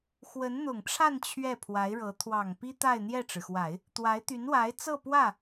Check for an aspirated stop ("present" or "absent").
present